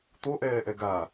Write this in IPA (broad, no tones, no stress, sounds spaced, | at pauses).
t̪ o ʔ ɛː ʔ ɛ ɡ a